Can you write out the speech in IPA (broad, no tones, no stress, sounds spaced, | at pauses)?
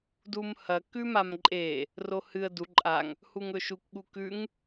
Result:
d u m h ɐ k ʉ m a m ǃʼ e | r o h ɨ ə̯ d u ǃʼ a ŋ | h u ŋ ɵ ʃ u k ɠ u k ʉ ŋ